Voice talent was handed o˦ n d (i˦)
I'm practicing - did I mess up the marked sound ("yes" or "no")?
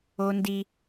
no